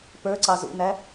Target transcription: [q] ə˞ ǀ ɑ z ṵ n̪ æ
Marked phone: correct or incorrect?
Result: incorrect